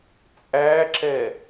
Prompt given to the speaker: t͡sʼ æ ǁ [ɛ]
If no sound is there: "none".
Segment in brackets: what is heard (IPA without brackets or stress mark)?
ɛ